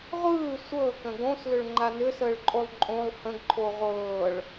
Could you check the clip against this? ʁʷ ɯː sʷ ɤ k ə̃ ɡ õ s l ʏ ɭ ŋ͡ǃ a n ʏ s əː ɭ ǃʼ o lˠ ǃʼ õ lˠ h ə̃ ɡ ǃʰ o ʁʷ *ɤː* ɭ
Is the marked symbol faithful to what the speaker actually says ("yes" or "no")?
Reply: yes